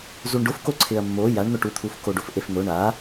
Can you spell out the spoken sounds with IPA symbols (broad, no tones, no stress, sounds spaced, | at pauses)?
z u ɳ ɖ ʊ f k o ǀʰ ɪ ɐ̯ mː o j a ɳ n̪ ʊ ʈ u t̪ʰ u f k o ɖ o f ʔ e f n̪ ʊ ɳ a